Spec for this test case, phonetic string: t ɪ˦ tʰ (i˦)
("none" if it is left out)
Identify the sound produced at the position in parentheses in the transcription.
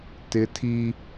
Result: i˦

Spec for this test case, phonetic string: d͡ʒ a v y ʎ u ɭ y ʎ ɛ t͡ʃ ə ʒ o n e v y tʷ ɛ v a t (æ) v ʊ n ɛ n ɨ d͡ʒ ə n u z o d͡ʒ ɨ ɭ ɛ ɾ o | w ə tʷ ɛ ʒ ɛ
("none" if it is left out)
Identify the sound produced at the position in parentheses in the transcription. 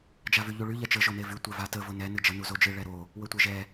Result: ə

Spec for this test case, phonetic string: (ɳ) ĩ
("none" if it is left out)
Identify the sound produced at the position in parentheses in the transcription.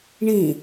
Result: ɳ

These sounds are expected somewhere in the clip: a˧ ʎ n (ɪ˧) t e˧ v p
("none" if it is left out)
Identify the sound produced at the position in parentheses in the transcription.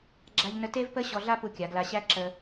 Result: ə˧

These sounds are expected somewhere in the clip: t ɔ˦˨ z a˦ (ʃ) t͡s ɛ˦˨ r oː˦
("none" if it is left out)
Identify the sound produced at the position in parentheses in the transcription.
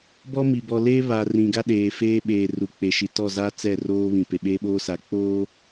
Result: none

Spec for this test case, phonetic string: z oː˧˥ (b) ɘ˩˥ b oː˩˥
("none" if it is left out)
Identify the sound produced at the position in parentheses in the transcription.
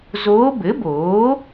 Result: b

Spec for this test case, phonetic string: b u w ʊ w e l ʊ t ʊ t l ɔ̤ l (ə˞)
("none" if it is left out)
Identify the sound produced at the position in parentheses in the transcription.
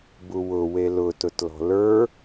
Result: ə˞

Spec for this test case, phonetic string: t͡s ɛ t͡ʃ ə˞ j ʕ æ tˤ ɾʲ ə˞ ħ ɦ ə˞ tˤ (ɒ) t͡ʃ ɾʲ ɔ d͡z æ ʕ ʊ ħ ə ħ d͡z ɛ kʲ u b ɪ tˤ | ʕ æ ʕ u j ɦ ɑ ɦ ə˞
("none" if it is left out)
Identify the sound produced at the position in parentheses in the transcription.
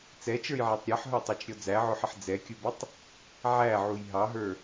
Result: ɑ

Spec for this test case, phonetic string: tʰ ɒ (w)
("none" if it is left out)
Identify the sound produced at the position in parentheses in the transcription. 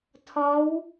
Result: w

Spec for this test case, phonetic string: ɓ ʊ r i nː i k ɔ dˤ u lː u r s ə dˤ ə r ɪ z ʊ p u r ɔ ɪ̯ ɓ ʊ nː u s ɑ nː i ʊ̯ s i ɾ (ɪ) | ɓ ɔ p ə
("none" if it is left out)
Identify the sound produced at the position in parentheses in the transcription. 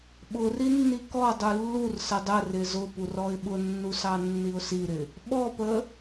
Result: ɪ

